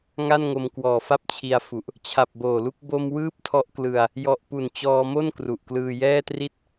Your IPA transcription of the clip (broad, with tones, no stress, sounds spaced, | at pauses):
ŋ a˥˩ n ŋ o˧ m k w ɔː˨˩ f a˥˩ p̚ t͡ɕʰ i˧ a̯ f u˨˩ ʔ | t͡ɕʰ a˨˩ p̚ b oː˨˩ l u˦˥ k̚ b o˧ m w ɯː˦˥ p̚ tʰ ɔ˦˥ ʔ k l ɯ˧ a̯ | j ɔ˨˩ ʔ p u˨˩ n t͡ɕ ɔː˧ m o˥˩ n k r u˨˩ ʔ k l ɯː˧ j ɛː˥˩ t r i˥˩ t̚